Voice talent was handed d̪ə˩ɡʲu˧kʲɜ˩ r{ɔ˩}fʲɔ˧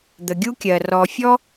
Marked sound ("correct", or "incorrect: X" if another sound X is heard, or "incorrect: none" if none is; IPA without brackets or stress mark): correct